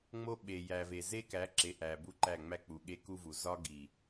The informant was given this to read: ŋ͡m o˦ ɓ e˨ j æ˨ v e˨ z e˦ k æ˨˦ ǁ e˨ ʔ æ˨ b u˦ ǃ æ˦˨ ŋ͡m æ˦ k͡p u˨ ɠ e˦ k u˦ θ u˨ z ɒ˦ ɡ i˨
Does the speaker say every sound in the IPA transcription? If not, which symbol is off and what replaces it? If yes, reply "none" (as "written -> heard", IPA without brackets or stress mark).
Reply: θ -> v